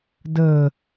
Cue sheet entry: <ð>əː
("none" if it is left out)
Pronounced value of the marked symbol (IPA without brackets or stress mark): d